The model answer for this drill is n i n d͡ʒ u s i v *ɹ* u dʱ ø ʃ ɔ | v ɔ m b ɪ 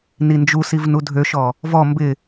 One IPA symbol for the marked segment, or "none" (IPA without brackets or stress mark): n